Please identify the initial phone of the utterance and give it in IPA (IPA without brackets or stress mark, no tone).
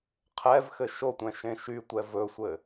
qʰ